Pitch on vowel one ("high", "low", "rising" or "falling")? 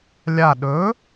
falling